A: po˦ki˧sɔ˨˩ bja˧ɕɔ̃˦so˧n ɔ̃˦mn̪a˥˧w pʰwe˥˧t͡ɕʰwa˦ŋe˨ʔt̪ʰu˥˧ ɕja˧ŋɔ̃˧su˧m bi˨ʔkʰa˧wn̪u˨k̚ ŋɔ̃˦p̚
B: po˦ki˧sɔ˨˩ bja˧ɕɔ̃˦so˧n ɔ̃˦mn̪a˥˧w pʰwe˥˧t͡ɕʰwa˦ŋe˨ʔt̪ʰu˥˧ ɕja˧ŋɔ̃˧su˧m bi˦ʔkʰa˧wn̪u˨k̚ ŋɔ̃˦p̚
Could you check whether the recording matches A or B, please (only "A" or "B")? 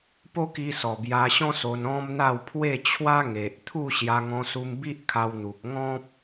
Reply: B